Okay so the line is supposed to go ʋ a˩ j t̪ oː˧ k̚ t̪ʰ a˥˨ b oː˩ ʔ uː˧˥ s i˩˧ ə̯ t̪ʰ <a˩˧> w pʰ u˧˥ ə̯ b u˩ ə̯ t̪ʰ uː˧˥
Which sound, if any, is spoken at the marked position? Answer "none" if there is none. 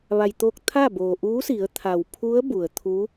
a˩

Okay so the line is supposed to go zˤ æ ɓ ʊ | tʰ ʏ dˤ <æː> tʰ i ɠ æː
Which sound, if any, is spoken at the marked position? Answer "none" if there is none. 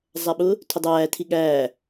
æː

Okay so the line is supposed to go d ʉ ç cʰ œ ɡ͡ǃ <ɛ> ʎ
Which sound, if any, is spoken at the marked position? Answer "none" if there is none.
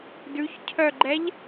ɛ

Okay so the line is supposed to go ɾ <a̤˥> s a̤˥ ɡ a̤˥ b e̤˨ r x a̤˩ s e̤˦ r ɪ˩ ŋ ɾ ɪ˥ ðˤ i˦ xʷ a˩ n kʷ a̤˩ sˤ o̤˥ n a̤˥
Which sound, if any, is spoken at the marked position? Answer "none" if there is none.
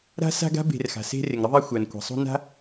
a̤˥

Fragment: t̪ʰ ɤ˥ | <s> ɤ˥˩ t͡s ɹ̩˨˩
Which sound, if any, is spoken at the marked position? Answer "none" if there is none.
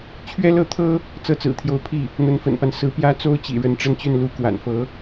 t͡s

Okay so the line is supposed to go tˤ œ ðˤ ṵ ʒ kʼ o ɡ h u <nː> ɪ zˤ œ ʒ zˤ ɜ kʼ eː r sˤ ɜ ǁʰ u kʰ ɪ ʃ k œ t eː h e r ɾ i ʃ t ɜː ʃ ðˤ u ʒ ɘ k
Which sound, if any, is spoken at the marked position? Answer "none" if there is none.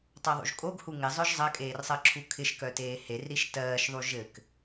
ŋ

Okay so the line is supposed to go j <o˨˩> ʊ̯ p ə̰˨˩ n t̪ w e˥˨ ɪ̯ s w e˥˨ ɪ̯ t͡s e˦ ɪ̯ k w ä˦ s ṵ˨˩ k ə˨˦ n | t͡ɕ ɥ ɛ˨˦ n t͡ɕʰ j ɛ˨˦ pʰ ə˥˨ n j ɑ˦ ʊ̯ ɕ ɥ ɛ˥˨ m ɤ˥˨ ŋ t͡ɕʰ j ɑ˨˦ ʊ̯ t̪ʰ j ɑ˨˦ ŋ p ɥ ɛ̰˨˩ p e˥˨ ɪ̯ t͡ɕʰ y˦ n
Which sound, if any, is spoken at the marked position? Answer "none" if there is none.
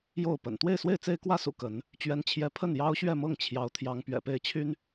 o˥˨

